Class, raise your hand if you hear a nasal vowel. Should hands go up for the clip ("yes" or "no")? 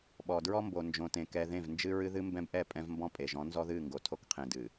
yes